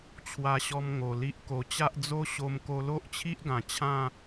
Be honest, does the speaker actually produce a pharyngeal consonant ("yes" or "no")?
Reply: no